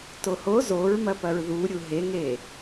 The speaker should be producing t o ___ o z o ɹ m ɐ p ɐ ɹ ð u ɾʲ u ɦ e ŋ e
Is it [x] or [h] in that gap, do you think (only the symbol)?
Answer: h